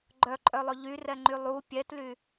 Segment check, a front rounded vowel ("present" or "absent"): present